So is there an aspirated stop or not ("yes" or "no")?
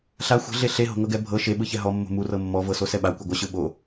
no